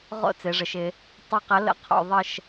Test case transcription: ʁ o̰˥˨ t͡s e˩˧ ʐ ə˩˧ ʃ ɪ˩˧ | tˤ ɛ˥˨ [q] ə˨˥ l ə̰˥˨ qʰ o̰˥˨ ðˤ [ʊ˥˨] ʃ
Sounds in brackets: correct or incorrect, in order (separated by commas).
correct, incorrect